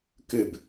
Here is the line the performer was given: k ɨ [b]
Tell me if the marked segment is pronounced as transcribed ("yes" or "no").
yes